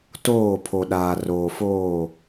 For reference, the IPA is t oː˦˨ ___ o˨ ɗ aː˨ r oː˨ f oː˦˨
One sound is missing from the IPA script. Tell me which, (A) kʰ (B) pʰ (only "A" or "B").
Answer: B